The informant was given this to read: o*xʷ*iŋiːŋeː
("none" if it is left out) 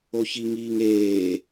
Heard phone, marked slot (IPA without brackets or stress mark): ç